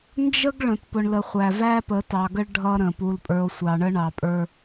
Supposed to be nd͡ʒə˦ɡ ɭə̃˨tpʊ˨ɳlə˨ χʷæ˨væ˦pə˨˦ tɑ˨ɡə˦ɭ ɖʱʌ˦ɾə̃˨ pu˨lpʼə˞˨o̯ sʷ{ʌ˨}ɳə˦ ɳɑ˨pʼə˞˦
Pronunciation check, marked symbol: incorrect: ɑ˨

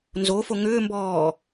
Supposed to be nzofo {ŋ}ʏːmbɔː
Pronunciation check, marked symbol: correct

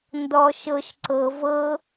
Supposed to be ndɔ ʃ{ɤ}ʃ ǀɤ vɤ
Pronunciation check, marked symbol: correct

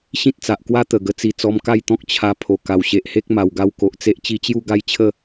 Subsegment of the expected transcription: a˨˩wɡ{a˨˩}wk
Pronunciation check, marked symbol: incorrect: a˧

